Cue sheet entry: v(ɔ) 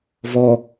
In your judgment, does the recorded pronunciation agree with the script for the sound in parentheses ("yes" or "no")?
yes